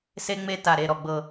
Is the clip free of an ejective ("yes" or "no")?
yes